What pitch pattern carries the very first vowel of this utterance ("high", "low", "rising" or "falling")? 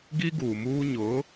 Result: high